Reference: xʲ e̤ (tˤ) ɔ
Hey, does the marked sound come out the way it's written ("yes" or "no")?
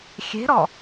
no